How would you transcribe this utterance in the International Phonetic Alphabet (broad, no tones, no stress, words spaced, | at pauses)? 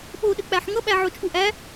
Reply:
ɓoɗɘk͡pæħ ŋʌɓæ ʕot͡ʃʼuʔæ